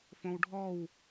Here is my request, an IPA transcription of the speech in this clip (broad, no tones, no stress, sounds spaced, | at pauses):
f õ w ɖʱ ɔ w